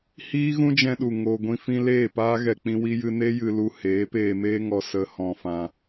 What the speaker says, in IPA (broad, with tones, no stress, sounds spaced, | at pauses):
h iː˦ ɣ ũ˦ d͡ʒ ɛ̃˧ ɗ u˨ ŋ o˧ ɡʷ ĩ˦ f ĩ˦ l eː˦˨ p aː˦ ɣ ɛ˧ k͡p ĩ˦ w i˦ j ɨ˦ n e˦ j ɨ˧ l u˧ h eː˨˦ p eː˧ m eː˦ ŋ ɔ˧ s ə˧ h ɔ̃˧ f ã˧